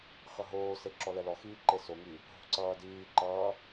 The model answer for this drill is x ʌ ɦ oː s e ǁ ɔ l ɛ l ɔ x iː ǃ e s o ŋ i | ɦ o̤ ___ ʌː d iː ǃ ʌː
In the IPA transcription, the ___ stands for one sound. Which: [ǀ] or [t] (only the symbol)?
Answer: ǀ